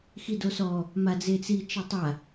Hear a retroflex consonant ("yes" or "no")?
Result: no